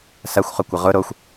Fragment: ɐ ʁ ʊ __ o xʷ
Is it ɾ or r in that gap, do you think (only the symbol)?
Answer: ɾ